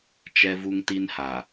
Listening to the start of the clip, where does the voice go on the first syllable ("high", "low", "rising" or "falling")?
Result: high